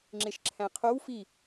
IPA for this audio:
ŋ͡ǁeʃǁʰæ̃qʰow fi

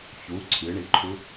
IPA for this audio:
çu ǀʰɨɳiǃʰu

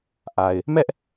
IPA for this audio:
ʔa˨ɪ̯ | mɛ˦ʔ

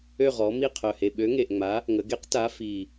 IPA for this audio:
ø˦˨ʁɔ˩˧ mi˦˨qʰœ˨˩he˨˩ ɓø˨˥ŋe˨˩ʔŋ͡ma˨˥ | ŋə˩˧ɡe˨˥q ta˨˥ fi˨˩

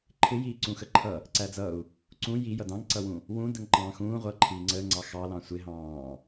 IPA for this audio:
ǃʰɪ jiːǀũxəǃʰʌ | ǀæd͡zʌu̯ | ǀũ ji jʌdɑ̃ŋǀʌwũ | wũ dəŋǃɑ̃ːxũː ʁʷʌːǃʰiːŋ͡ǀəːŋ͡ǀɑ xɑlɑ̃ sʷɪɦɑ̃ː

